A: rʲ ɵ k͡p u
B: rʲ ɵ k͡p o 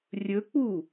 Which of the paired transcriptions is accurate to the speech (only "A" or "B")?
A